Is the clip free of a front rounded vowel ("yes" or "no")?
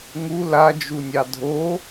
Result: yes